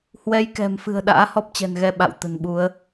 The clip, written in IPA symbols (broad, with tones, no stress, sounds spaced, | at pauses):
h w ɛ˨˦ j k ɛ̤˨˩ m f ɨ̤˨˩ ə̯ ɗ a̰ː˧˥ h ɔ˦˥ p̚ t͡ɕ ɛ̤˨˩ n ɣ ɛ˧ ɓ a̰˧˨ w t̪ ə̤˨˩ n ɓ u˨˦ ə̯